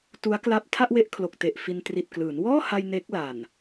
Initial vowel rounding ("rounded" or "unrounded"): rounded